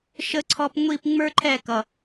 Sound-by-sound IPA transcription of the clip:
ʃ ə˧ ǀʰ ɔ˧ p ŋʷ i˦˨ p ŋ͡m ə˞˦ ǃʰ ɛ˦˨ k ʌ˨

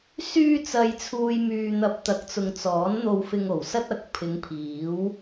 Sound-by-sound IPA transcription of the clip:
s yː˧ t͡s ɐ˨ j t͡sʰ uː˨ j m yː˨ n̪ ɐ˨ p̚ t̪ ɐ˨˥ k̚ t͡s ʊ˨ ŋ t͡s ɔː˨˥ n n̪ o˧ w f ɪ˧ ŋ o˨˩ w s ɐ˥ t̚ ɐ˨ k̚ pʰ ɪ˨˧ ŋ pʰ iː˨˥ w

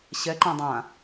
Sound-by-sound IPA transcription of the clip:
ɕ ɛ ǃ ã dˤ ã

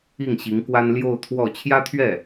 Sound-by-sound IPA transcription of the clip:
i˥˩ ŋ ɕ i˧˥ ŋ k w a˥ n l j o˥˧ ʊ̯ t̪ʰ w ɔ˥˩ t͡ɕʰ j ä˥ t̪ʰ ɥ ɛ˥˩

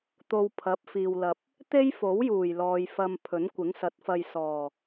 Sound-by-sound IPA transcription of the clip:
t̪ o˧ w pʰ ɐ˨˥ p̚ f iː˨ w l ɐ˨ p̚ | t̪ e˥ j f o˨˥ w j uː˨˩ j l ɔː˨ j f ɐ˧ m pʰ ɵ˨˥ n kʷ ɪ˨˥ ŋ s ɐ˨˥ t̚ f ɐ˧ j s ɔː˨˩

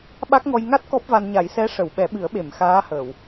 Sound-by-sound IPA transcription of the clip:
ɓ a˦˥ k̚ ŋ ɔ˧ j ŋ a˦˥ t̚ k ɔ˦˥ p̚ v a˧ n ɲ a˨˩˦ j s ɛ˧˥ ʂ ə˨˩˨ w ɓ ɛ˨˩˦ ɓ ɨ˨˩˦ ə̯ ɓ e˨˩˨ m x aː˧˥ h əː˨˩˨ w

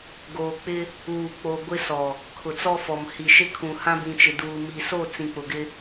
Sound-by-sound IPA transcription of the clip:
ɡ oː˨ k͡p ɪ˦ | uː˨ k͡p o˨ ɡʷ ɪ˦ s ɔ˨ | kʰ ʊ˨ t͡s ɔ˦ f ɔ˨ m h i˨ ʃ ɪ˦ kʰ ũ˨ h ã˦ b ĩ˨ t͡ʃ ɪ˨ d uː˨ m i˨ s o˦˨ t͡s ĩ˨ k͡p ʊ˨ ɡ ɪ˦

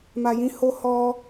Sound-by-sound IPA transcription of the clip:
m a˨ j ĩ˧ h o˧ h ɔ˧

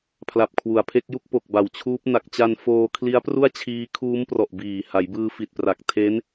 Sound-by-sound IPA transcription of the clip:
pʰ l a˨˩ p̚ kʰ w u˩˦ a̯ pʰ e˦˥ k̚ j u˥˩ k̚ p o˨˩ k̚ b a˨˩ w t͡ɕʰ uː˦˥ p̚ n a˨˩ k̚ t͡ɕ a˧ n f oː˧ kʰ l i˦˥ a̯ p r u˥˩ a̯ t͡ɕʰ iː˦˥ kʰ uː˦˥ m p r ɔ˨˩ ʔ b iː˨˩ h a˩˦ j b ɯː˧ f i˨˩ t̚ p r a˨˩ k̚ tʰ e˦˥ n

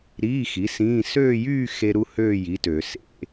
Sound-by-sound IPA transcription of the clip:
ɾ iː˧˥˧ x i˨˥ s ĩː˧˥˧ s øː˥˧ j yː˥˧ x e˥ ɾ u˥ h øː˥˧ j i˨˥ t ø˨˩˦ s ḛ˥

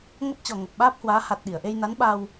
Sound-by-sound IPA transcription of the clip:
ŋ ə˦˥ p̚ t͡ɕ ɔ˨˩ ŋ ə˨˩ p̚ ɓ aː˦˥ p̚ h w aː˨˦ h a˨˩ t̚ ɗ i˧˩ ə̯ ʔ e˧ j n a˨˦ n ɓ a˧ w

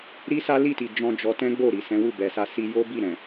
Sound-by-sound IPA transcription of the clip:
ɾ i˦ s a˦ l i˦˨ t i˨ d͡ʒ ɔ̃˧ d͡ʒ ɔ˧ t ɛ̃˦ ɡ͡b o˦˨ ɾ i˨ s ɛ̃˨˦ w u˦˨ b ɛ˨ s a˧ s i˧ j o˦ b i˦˨ ɾ ɛ̃˨

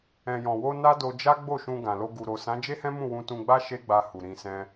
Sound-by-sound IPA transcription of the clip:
ɛ̃˨ j ɔ̃˨ w o˧ n a˦ d o˧ d͡ʒ a˦ ɡ͡b o˦˨ ʃ ũ˧ ɡ ã˨ l o˧ ɡ u˨ ɾ o˨ s ã˨˦ d͡ʒ e˦ h ɛ̃˦ m ũ˦˨ w ũ˧ t ũ˧ ɡ͡b a˦ ʃ e˦ ɡ͡b a˧ h u˨ ɾ ĩ˧ s ɛ̃˦

